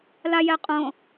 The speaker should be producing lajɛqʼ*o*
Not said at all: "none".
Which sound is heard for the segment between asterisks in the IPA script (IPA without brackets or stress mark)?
õ